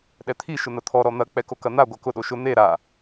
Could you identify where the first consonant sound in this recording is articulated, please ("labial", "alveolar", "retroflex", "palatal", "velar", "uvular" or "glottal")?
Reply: alveolar